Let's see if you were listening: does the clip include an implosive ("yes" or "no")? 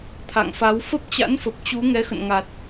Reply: no